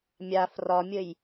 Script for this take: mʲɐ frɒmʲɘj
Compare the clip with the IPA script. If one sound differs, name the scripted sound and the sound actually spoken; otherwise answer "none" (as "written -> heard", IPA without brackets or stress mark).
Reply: ɐ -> a